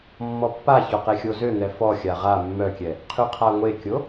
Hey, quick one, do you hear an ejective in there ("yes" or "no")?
no